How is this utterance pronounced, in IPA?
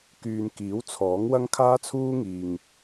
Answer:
k yː˨ n k iː˨˥ w t͡sʰ ɔː˨˥ ŋ w ɐ˥ ŋ kʰ aː˥ t͡sʰ uː˥ ŋ iː˨ ŋ

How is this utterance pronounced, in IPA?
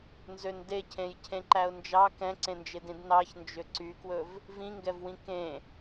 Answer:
n z ø n d e cʰ ẽ j cʰ ẽ ǃ æ ʊ̯ n d͡ʒ ɑ k ɛ̃ ǀ ẽ n d͡ʒ e d ĩ d n ɑ ç n d͡ʒ ø ǀ y k w ɵ v | v ĩ ŋ ɡ ɛ v w ĩ k ẽ

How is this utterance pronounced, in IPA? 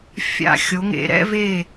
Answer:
fʲ a̰˧˩ xʲ o˩˧ ŋ ḛ˩˧ ɾ ɛ̰˥˧ v e˧˩

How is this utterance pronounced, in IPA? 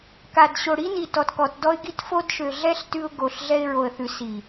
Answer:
k a˨ d ɕ o˨ ɽ i˦ n i˨ t ɔ˨ t k ɔ˨ t d ɔ˦ ɪ̯ ɡ i˦ t f o˦ d ʃ ø˨ ɮ ɛ˦ ɬ t ʉ˦ ʊ̯ ɡ o˨ ɬ ɮ ɛ˦ ɪ̯ ɹ o˨ ə̯ θ ʉ˨˦ s i˨

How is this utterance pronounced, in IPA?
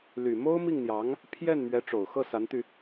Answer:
l y˨˩ m o˥ ʊ̯ m i˥˩ ŋ n̪ j ɑ˧˥ ŋ | pʰ j ɛ˥˩ n m ɥ ɛ˧˥ ʈ͡ʂ o˨˩ ʊ̯ x ɤ˥˩ s a˧˥ n t̪ y˧

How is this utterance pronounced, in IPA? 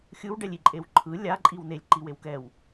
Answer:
xʲ ɯ w ɖ ɛ lʲ i ǃʼ e w ǃʰ ɯ lʲ a ǃʼ i w n e lʲ ǃ i w e w k ɛ w

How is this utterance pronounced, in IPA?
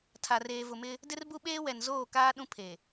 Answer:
tʰ a˨ r eː˨ v ʊ˨ m ɪ˦ | d ɪ˦ r b u˦ ɓ eː˦ w ɛ˨ n z oː˦˨ k aː˦ ɗ ũ˦ pʰ e˨

